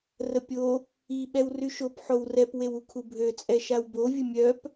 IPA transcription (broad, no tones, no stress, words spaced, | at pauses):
rəpʲo | i ɓɛwryʃop ħowrɛp wewukʰubʱø t͡sʼɛʃawbo vʲəmʲœp